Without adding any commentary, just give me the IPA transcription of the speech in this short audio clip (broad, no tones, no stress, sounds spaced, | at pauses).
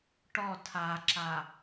ʈ ɔ tʰ a ǁ a